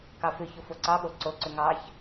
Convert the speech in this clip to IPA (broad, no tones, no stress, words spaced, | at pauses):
kɑfʏço foǀɑɓo ǀoǀʏ ŋɑç